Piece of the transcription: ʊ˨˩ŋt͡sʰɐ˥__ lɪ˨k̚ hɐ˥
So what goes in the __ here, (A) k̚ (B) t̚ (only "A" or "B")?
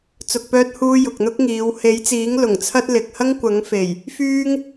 B